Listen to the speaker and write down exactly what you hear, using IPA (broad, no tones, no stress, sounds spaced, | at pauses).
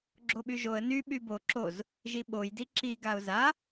ɡ͡ǁ o ɓ y ʒ o ə̯ n y ɓ y b o ǁ o z | ʒ i ɓ o j d i ǁ i ɡ a ʊ̯ z a